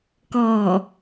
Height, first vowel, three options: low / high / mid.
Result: mid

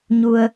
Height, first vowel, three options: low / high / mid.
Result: high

